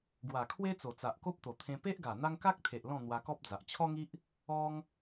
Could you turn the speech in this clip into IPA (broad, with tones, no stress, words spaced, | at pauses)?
ɡwa˨˩kʰwe˦t͡so˨˩t͡sa˨ʔ ko˦p̚t̪o˨˩t̪ʰẽ˧ pe˦ʔɡa˨˩ n̪a˦ŋ ka˦k̚t̪ʰe˨ʔ lɔ̃˥˧n̪wa˧kɔ˦p̚d͡za˨ʔ t͡ɕʰɔ˦ŋi˦ʔ | ɔ˦ŋ